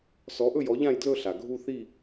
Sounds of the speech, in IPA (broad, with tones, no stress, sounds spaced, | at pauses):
s ɔ˨˦ ʔ ɵ˦˨ j ɔ˨˦ ʎ ã˦˨ j d l ɵ˦˨ ɬ a˩ ɡʱ u˦˨ θ i˦˨